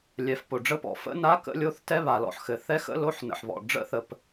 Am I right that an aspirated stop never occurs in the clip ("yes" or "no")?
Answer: yes